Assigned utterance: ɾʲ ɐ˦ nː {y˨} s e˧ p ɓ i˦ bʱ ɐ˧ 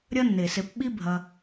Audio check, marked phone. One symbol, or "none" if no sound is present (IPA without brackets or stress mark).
e˨